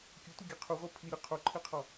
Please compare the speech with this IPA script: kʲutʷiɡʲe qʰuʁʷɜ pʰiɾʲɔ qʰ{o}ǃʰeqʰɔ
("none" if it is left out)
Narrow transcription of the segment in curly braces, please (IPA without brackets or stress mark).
o